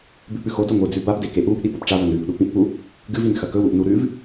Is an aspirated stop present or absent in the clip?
absent